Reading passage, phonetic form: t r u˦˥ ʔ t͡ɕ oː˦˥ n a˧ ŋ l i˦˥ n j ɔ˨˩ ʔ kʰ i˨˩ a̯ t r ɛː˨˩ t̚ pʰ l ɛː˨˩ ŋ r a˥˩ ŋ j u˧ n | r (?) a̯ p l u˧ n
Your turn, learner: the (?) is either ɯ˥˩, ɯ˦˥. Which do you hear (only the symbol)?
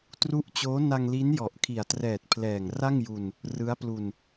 ɯ˦˥